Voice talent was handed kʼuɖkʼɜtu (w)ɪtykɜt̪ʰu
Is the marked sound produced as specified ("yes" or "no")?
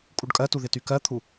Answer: no